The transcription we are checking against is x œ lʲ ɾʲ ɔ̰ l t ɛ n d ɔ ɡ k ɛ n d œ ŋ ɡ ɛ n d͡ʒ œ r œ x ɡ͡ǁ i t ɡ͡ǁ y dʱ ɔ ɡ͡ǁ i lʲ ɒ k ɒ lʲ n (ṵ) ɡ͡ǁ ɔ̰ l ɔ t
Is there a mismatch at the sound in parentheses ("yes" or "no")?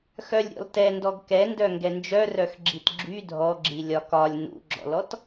no